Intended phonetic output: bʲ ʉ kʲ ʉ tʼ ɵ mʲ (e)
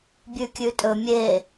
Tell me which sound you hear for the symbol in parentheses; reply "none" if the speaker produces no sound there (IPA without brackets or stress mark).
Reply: e